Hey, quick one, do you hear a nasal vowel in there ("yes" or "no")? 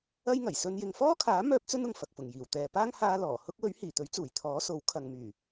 no